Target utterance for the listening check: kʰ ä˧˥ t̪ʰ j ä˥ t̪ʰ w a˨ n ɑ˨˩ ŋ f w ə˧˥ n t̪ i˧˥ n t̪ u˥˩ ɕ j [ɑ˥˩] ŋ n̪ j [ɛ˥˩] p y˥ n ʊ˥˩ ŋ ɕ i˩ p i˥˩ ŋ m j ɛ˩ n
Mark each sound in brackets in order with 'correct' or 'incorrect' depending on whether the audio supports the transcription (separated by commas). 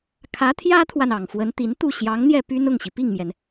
incorrect, correct